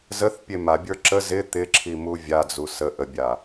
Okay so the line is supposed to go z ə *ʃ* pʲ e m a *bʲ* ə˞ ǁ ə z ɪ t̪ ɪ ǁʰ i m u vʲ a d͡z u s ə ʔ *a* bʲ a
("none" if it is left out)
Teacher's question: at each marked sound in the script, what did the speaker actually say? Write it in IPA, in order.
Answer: θ, bʲ, ə

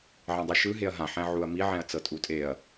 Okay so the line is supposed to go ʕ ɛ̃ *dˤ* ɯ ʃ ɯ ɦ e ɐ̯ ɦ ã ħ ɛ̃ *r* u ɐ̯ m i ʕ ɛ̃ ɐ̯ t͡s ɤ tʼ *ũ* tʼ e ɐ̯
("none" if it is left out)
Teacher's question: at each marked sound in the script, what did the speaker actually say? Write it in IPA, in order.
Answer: dˤ, ʕ, u

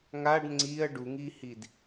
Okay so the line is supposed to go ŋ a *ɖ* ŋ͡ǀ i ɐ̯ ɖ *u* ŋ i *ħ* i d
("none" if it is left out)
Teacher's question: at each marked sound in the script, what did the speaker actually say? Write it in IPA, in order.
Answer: ɖ, u, h

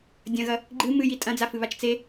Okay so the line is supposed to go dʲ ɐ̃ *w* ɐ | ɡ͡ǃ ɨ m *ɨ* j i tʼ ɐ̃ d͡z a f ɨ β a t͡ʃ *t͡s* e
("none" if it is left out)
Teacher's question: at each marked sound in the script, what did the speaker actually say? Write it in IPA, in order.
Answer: ɣ, ɨ, t͡s

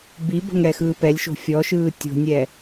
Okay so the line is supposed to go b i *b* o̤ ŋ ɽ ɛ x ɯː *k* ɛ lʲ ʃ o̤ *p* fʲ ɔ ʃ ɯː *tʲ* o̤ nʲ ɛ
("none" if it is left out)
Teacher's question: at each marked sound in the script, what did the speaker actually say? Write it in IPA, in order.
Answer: b, p, none, tʲ

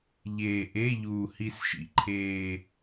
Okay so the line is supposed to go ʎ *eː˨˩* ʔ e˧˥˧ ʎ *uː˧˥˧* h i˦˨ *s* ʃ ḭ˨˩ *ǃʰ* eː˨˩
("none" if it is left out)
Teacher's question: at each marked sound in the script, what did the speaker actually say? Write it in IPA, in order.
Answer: eː˨˩, uː˨˩, s, ǃʰ

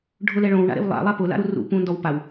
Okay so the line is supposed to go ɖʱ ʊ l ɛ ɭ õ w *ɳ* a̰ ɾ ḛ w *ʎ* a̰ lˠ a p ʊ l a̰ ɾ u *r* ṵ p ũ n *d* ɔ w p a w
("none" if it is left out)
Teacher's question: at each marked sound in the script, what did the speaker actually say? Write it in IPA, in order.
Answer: ɳ, lˠ, r, d

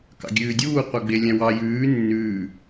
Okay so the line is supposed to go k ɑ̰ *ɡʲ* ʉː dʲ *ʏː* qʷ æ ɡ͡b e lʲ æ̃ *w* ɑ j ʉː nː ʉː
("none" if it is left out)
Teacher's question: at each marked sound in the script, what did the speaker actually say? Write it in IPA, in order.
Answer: ɡʲ, uː, w

